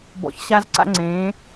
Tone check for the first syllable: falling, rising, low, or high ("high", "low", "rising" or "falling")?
low